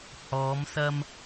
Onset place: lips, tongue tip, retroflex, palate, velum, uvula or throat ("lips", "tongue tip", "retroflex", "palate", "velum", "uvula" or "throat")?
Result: throat